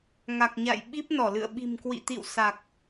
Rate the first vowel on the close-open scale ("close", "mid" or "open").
open